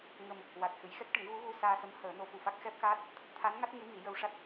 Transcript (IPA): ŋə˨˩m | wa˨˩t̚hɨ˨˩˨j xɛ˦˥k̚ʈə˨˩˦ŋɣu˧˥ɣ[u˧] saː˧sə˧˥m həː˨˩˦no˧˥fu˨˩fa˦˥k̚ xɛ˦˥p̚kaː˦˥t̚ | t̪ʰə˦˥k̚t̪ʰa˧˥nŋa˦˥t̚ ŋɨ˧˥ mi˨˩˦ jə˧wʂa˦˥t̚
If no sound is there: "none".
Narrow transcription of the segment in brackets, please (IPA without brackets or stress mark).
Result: u˧